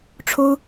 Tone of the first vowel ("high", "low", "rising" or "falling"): high